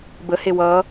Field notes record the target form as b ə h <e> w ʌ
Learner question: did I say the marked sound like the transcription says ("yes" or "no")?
yes